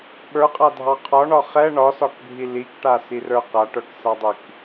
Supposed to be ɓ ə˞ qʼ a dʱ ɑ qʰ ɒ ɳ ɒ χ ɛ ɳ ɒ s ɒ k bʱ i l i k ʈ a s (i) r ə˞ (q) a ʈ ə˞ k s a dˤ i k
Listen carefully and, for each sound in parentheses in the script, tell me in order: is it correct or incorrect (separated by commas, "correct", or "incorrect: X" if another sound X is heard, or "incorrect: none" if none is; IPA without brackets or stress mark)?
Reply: correct, correct